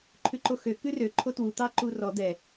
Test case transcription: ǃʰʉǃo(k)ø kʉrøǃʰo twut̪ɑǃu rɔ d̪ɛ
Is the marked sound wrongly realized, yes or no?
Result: yes